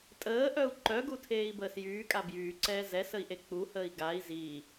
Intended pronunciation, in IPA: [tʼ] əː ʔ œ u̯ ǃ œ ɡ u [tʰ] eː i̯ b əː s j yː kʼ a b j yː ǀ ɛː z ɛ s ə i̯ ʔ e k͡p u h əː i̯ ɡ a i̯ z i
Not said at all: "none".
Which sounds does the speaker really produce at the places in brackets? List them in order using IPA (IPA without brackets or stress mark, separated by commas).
tʼ, tʰ